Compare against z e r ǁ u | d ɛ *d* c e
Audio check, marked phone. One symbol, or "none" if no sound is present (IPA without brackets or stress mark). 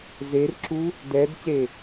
d